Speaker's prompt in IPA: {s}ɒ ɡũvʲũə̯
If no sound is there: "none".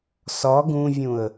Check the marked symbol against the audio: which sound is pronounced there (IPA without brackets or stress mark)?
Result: s